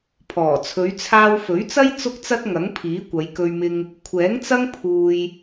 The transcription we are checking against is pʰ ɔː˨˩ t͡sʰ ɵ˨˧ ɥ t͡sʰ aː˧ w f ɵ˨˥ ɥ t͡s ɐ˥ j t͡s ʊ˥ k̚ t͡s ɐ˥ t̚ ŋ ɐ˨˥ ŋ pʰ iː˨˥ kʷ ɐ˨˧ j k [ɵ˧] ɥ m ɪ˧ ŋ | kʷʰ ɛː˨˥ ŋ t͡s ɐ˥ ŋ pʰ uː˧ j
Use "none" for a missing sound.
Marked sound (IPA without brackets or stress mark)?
ɵ˧